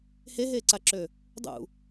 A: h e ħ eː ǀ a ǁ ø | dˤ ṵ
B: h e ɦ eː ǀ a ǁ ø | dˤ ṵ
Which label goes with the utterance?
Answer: B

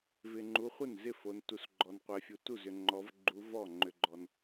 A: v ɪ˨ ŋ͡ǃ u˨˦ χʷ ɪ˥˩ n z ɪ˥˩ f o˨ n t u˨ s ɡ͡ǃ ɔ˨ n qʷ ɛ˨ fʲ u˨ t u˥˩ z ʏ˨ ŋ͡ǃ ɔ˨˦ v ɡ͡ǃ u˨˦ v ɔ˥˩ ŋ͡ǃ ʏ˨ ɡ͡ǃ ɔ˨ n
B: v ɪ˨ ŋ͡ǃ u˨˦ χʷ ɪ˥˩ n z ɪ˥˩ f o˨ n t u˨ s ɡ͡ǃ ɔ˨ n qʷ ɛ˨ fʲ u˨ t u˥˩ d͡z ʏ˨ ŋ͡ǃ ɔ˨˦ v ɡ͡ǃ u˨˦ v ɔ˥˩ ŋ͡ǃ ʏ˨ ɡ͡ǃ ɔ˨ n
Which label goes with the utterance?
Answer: A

